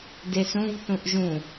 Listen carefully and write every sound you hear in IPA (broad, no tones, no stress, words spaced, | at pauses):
desũv θũʔʒũ